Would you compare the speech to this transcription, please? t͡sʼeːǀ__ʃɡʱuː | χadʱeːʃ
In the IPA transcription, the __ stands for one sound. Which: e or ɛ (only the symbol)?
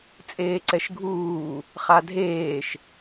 ɛ